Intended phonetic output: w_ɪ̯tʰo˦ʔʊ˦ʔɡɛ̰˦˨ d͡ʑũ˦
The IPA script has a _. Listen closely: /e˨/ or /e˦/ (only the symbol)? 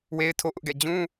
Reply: e˦